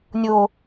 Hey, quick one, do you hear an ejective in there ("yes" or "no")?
no